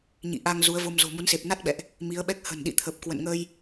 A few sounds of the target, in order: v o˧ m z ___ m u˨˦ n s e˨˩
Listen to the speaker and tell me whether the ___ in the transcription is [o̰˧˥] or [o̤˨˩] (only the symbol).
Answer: o̤˨˩